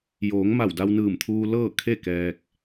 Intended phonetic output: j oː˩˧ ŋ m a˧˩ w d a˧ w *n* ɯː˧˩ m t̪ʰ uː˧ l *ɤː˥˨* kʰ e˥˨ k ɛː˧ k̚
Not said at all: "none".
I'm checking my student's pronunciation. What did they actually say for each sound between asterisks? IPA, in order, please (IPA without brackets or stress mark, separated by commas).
n, ɤː˥˨